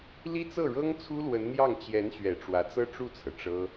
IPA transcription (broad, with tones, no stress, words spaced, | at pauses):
li˥t͡sɤ˥˩ɻɤ˥ŋ t͡sʰu˥lwə˧˥nn̪jɑ˥˩ŋ t͡ɕjɛ˧˥nɕɥɛ˨˩ ʈ͡ʂwä˧˥t͡sɤ˥ʈ͡ʂu˥˩t͡sʰɤ˩ ʈ͡ʂɤ˥